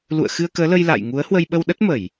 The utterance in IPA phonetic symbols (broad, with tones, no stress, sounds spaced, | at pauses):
l ṵ˧˨ ə̯ x ɨ˧ ə̯ k əː˨˦ l ə˧ j l a̰ː˧˨ j ŋ u˨˦ ə̯ h w ə˧ j ɓ ə˧ w ɗ ə˦˥ t̚ m ə˧˩˨ j